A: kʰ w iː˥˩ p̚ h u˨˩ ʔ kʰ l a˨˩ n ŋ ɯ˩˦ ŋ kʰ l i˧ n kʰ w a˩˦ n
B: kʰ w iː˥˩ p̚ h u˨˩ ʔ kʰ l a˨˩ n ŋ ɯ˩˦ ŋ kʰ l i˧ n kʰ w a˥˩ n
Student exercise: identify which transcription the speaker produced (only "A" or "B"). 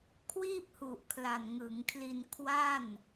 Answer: B